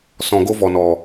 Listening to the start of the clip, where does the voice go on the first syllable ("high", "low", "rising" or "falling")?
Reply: low